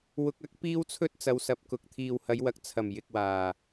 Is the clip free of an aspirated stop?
no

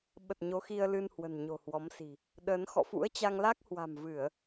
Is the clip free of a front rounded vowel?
yes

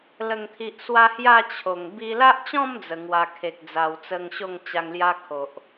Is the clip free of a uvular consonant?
yes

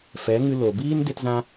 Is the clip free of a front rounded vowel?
yes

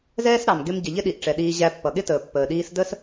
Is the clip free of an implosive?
no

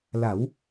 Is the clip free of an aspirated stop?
yes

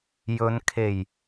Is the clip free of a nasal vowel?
yes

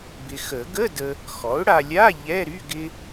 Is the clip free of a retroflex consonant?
no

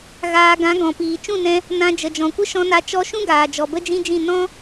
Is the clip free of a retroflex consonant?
yes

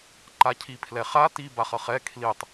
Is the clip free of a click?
no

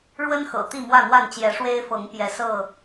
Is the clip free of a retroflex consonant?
no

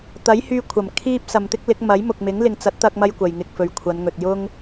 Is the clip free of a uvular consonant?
yes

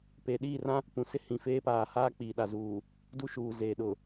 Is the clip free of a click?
yes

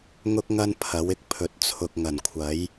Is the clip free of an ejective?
yes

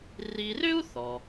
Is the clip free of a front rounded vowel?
no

